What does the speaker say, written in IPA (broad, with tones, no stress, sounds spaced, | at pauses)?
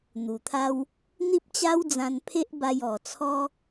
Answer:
n̪ u˨˩ t̪ʰ a˦ w | n̪ i˦ p̚ t͡ɕ a˦ w d͡z ã˧ n pʰ e˦ ʔ b a˧ j ɔ˨˩ t͡sʰ ɔ˦